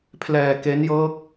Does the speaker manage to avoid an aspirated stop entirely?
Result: no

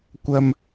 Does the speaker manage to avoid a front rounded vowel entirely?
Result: yes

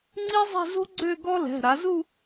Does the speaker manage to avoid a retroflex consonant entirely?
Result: yes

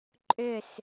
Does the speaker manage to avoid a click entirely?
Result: no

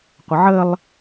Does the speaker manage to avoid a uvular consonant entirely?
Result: no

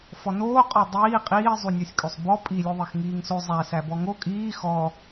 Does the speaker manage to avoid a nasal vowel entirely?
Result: yes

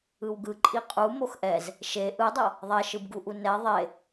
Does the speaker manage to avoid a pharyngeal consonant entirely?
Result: yes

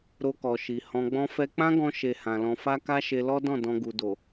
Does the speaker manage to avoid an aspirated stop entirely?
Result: yes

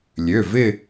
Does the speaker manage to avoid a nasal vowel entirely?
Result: yes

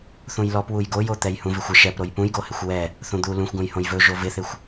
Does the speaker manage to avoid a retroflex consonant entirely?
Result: yes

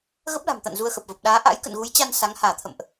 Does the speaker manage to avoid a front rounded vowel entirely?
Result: yes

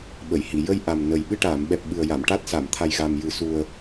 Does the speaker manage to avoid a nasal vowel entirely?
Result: yes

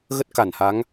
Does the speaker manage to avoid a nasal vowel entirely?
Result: yes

